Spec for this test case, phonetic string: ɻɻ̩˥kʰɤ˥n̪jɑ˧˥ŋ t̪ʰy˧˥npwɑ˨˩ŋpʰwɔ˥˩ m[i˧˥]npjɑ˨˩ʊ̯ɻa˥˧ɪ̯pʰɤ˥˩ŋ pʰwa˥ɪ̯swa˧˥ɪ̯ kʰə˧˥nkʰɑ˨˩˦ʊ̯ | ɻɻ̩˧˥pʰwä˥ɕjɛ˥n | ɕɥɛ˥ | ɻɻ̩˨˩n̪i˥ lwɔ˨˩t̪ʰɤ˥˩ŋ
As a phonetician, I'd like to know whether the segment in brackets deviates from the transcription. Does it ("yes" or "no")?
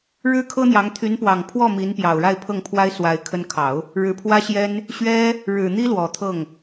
no